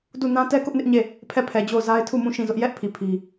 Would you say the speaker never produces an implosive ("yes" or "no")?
yes